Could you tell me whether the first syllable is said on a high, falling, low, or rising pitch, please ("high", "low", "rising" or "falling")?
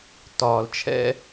low